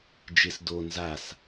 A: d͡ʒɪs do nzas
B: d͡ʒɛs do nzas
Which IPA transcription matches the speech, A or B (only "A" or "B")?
A